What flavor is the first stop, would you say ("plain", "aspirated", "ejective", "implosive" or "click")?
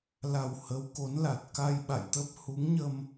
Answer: plain